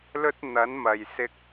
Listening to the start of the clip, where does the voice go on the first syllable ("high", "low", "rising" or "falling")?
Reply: high